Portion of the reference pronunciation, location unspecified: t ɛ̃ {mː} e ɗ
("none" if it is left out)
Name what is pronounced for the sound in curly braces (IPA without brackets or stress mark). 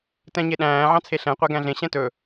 ɲ